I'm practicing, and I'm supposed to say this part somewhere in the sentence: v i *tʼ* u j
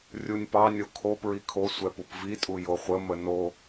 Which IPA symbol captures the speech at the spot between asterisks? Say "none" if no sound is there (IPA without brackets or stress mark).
tʼ